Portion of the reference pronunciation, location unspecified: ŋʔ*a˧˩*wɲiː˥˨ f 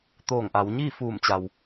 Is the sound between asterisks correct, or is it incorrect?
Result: incorrect